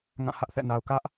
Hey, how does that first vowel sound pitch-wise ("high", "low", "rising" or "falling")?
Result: falling